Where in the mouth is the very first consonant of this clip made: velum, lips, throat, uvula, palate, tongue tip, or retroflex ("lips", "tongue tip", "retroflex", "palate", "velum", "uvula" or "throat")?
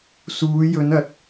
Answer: tongue tip